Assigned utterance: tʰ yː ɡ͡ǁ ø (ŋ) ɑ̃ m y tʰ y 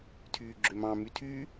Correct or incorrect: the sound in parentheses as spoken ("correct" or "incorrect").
incorrect